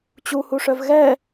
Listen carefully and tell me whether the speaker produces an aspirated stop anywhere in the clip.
no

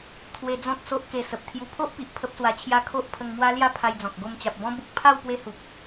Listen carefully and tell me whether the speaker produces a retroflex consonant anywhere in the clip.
no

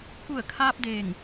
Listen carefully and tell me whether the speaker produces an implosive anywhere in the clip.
no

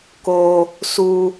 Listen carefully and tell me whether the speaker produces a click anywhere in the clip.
no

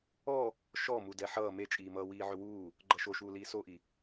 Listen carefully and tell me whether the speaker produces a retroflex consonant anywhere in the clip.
no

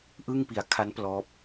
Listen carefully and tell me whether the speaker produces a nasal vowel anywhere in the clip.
no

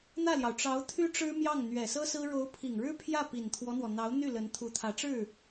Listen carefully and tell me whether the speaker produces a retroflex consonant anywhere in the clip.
yes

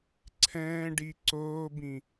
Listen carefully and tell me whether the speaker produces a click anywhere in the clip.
yes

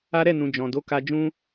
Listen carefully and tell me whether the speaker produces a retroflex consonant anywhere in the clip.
no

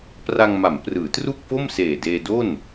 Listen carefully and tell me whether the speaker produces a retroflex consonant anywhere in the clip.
no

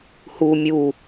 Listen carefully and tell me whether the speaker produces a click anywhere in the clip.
no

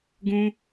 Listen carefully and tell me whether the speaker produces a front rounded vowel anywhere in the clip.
no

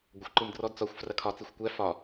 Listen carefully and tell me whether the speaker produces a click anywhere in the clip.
yes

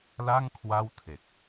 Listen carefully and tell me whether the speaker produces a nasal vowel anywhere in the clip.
no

